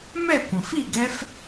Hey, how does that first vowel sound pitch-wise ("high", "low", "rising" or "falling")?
falling